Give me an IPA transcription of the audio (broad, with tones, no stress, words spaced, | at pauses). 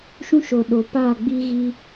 ʃũ˦ʃo˨ ɗo˨paː˦˨ɡ͡biː˦ ɣi˦